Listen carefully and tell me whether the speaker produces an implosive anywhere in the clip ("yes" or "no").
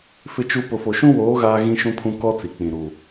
no